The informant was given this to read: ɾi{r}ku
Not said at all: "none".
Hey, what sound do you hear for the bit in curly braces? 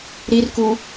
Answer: r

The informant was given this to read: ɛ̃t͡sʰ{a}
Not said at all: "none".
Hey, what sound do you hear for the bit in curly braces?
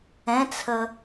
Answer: ə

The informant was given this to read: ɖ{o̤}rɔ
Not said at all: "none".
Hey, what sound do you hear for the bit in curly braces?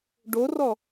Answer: o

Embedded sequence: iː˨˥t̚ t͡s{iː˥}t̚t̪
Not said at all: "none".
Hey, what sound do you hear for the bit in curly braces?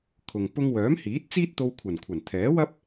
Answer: iː˥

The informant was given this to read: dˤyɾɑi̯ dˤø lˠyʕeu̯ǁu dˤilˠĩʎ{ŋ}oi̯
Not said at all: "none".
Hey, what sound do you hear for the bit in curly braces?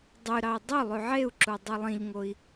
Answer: ŋ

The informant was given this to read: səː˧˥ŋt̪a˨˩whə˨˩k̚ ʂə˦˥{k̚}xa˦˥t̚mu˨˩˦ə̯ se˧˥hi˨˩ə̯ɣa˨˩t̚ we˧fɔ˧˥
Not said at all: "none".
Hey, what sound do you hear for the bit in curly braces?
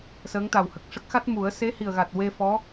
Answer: k̚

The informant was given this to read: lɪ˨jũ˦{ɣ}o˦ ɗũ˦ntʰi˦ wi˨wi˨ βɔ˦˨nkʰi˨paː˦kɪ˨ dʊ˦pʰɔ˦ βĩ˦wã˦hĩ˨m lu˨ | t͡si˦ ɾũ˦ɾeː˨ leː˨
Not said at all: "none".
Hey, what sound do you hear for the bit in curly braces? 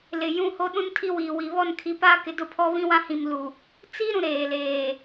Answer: h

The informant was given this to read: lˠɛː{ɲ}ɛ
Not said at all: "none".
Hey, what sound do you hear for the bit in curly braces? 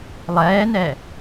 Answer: n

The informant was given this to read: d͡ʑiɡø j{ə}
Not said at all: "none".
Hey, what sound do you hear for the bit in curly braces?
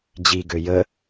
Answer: ə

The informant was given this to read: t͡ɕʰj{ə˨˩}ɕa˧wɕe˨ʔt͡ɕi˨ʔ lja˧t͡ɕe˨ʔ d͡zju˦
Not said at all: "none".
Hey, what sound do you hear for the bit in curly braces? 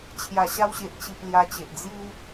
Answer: a˨˩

